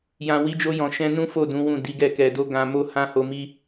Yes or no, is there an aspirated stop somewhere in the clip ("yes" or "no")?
no